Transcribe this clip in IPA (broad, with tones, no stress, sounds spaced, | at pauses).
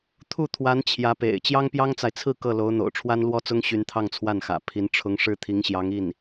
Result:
t̪ʰ u˥˩ t̪ʰ w a˧˥ n t͡ɕʰ j ä˧˥ p ḛ˨˩ ɪ̯ t͡ɕ j ɑ˥ ŋ p j ɑ˥ ŋ t͡s a˨ ɪ̯ t͡sʰ ɹ̩˥˧ k ɤ˥˩ l o˧˥ ʊ̯ n̪ o̰˨˩ ʊ̯ ʈ͡ʂʰ w a˥ n l w ɔ˥ t͡s ʊ˥ ŋ ɕ y˧˥ n t̪ʰ ɑ˥˧ ŋ t͡sʰ w a˥˩ n x ä̰˨˩ pʰ i˧˥ n ʈ͡ʂʰ ʊ˧˥ ŋ ʂ ɻ̩˥ t̪ʰ i˧˥ ŋ ɕ j ɑ˧˥ ŋ i˥˩ n